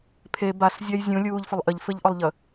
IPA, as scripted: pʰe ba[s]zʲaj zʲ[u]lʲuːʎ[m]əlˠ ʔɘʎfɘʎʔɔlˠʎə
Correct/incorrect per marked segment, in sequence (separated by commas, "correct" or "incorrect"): correct, incorrect, incorrect